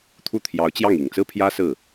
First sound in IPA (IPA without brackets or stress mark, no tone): t̪ʰ